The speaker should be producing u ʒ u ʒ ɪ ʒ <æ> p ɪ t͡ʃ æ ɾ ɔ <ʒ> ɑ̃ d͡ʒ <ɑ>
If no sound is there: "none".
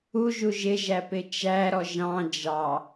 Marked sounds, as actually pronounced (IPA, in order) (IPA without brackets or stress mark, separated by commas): æ, ʒ, ɑ